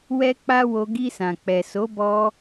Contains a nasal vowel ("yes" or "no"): yes